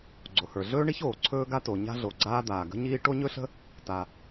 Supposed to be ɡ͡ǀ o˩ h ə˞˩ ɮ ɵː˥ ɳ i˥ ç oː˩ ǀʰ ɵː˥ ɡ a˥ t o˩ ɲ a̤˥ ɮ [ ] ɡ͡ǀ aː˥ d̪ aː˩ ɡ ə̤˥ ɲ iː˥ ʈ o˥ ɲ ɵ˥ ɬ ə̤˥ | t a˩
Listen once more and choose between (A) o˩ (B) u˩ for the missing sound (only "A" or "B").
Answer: A